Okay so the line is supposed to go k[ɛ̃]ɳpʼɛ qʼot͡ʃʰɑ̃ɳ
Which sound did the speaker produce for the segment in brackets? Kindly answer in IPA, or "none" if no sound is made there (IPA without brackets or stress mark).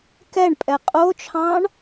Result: ɛ